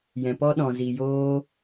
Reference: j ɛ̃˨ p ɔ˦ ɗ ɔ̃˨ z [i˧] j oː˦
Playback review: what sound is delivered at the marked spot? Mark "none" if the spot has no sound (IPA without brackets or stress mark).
i˨